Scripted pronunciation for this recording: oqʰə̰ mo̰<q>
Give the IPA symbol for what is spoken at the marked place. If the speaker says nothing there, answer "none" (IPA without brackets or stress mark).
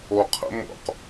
q